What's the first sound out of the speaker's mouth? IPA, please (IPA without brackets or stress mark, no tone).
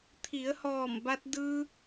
t̪ʰ